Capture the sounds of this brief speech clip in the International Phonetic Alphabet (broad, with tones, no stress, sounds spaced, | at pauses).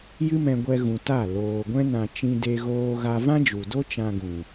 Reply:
j ɨ˦ m ɛ̃˧ ɡʷ ɛ˧ ɣ ũ˨ t a˦˨ l oː˨ ɡʷ ɛ̃˦ n ã˧ t͡ʃ ĩ˦ d e˦ ɣ oː˧ ɣ a˧ v ã˦ d͡ʒ u˨ d o˦ t͡ʃ ã˧ ɡ ũ˨